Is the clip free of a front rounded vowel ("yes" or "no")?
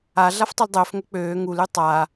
no